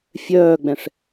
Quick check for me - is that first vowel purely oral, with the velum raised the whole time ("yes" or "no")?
yes